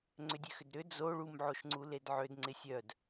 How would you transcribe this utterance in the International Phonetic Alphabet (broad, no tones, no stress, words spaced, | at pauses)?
ŋ͡ǀʏdʲøxʏdɾʏ d͡zo ɭum ʕoʃŋ͡ǀuledʕød ŋ͡ǀɪsʲœd